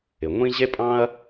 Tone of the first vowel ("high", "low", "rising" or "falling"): low